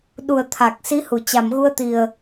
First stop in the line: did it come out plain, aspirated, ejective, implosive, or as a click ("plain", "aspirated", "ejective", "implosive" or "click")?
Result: implosive